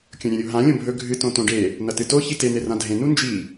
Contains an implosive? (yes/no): no